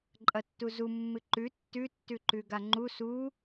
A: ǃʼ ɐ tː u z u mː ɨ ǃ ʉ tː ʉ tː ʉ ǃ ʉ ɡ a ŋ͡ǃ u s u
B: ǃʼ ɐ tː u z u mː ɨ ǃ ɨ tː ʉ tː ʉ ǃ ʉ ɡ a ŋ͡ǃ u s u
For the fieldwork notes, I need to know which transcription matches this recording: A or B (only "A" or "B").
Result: A